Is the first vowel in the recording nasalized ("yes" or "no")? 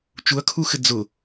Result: no